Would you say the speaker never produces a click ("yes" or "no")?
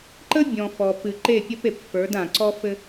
no